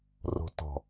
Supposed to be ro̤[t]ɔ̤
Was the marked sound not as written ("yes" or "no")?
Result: no